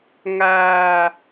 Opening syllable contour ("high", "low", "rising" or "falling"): high